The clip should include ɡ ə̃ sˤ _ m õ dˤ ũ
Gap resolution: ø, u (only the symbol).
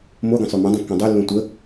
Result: ø